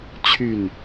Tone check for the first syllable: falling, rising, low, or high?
falling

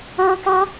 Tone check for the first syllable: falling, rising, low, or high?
high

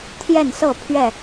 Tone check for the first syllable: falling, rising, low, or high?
falling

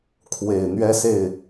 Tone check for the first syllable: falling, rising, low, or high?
low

